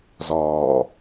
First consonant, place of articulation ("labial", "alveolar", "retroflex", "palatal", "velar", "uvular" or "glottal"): alveolar